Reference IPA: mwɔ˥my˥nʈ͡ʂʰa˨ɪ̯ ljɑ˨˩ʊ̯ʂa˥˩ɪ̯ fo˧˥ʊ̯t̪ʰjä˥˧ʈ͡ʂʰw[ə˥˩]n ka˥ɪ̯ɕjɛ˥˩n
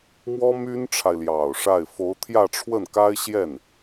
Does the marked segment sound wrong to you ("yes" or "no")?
no